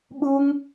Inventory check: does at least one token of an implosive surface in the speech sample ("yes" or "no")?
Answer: yes